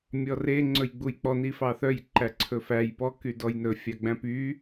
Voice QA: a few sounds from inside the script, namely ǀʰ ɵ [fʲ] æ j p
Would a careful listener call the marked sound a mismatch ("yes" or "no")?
yes